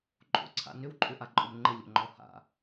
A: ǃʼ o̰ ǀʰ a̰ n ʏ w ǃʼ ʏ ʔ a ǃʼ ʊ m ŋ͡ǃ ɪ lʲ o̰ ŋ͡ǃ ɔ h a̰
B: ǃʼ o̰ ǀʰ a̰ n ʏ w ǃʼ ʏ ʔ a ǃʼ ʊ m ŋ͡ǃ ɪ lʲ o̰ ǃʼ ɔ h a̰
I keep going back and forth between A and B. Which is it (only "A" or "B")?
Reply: A